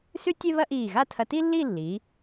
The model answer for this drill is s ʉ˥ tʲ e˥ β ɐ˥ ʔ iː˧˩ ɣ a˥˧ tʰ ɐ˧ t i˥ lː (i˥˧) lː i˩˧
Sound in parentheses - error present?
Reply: no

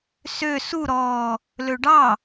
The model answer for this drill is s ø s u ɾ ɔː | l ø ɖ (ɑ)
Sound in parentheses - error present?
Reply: no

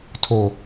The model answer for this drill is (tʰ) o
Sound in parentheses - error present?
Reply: no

